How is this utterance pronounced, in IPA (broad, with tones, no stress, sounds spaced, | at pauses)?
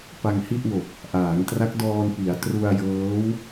p a˧ ŋ h i˥˩ ʔ w o˨˩ k̚ | ʔ aː˩˦ ŋ t r a˦˥ k̚ d ɔː˧ n p i˩˦ a̯ t r u˧ a̯ j ɤː˦˥ w